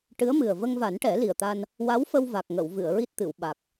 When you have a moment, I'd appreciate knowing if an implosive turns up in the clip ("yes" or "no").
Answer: yes